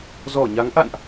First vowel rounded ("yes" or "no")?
yes